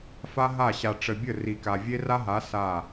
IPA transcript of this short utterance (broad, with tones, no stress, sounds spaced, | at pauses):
f a˦ ɦ a˦˨ ɕ a˨ ʈ͡ʂ ə˨ bʲ ə˦˨ r i˨ k a˨ vʲ e˦ r a˦ ɦ a˨˦ s a˦˨